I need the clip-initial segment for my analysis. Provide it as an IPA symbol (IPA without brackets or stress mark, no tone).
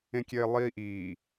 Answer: ẽ